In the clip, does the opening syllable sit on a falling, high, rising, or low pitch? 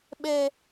high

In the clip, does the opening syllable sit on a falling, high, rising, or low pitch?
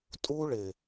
high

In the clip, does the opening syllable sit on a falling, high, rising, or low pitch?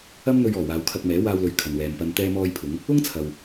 high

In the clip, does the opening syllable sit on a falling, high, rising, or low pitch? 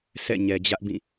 falling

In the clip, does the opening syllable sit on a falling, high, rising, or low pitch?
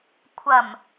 low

